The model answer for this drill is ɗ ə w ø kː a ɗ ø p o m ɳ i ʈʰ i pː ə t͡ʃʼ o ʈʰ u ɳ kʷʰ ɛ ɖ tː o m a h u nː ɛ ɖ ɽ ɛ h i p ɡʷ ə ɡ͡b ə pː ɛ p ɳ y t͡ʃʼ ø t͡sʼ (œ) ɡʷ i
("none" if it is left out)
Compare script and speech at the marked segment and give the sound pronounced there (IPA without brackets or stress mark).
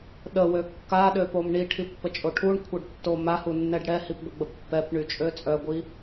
œ